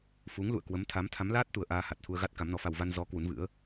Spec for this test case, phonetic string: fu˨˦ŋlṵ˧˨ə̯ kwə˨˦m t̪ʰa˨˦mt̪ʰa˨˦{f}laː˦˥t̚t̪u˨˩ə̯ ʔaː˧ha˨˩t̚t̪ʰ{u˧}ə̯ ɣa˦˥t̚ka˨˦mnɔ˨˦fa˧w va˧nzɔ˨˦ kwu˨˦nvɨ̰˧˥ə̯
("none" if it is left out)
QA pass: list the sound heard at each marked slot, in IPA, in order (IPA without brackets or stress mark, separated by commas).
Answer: m, u˧